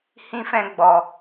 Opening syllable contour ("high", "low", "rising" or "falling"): high